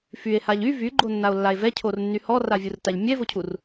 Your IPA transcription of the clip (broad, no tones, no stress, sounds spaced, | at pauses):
f y e̯ h a ʎ y v y ɡ͡ǃ o nː a o̯ lː a e̯ v ɛ cʰ o r nː y h ɔ r a vʲ u r t a ʎ mʲ ɛ v o cʰ u r